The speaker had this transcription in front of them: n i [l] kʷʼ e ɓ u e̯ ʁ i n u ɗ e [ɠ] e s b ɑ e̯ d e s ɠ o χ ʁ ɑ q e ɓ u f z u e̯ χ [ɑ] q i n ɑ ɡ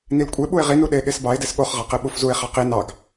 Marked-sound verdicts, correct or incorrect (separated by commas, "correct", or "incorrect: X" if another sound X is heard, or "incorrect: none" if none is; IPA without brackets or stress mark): correct, correct, correct